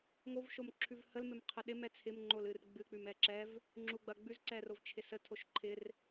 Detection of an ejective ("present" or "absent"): absent